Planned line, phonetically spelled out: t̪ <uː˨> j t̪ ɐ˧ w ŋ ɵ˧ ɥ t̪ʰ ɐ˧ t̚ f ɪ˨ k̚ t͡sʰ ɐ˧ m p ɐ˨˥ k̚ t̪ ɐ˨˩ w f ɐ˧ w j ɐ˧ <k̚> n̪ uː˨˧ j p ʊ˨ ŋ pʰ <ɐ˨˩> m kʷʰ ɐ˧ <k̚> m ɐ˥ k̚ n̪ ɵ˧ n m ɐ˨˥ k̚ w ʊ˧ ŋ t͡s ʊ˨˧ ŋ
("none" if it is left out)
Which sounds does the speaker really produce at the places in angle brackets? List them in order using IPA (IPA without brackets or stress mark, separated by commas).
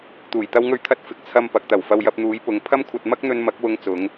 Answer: uː˨˩, p̚, ɐ˥, t̚